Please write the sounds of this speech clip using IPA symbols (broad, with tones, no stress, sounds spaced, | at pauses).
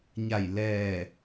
ɲ a˧˩ j l ɛː˧˩